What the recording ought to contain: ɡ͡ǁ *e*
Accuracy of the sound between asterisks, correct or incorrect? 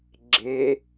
correct